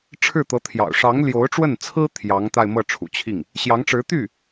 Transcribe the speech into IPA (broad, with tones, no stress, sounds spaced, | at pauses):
ʈ͡ʂʰ ɻ̩˥˩ t̪ ɤ˧˥ t̪ʰ j ɑ̰˨˩ ʊ̯ ʂ ɑ˧˥ ŋ l j o˧˥ ʊ̯ ʈ͡ʂ w ə˥˩ n t͡sʰ ɹ̩˥ t̪ʰ j ɑ˧˥ ŋ t̪ a˥˧ ɪ̯ m ɤ˥˩ ʈ͡ʂʰ ṵ˨˩ t͡ɕʰ i˥˩ ŋ | ɕ j ɑ˧˥ ŋ ʈ͡ʂ ɻ̩˧˥ t̪ y˥˩